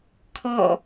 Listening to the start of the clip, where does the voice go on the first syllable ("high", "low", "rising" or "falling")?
falling